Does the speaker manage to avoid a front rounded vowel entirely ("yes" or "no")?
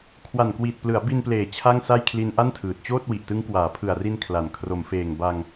yes